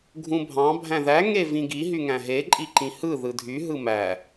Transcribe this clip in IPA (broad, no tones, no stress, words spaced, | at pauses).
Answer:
ɡʱũbʱɑ̃ bʱæ̃ðæ ŋevĩɡi ɦyŋæ̃ɦe ǃʼiǃĩhɯ ðɯdʱy ɦɯmæ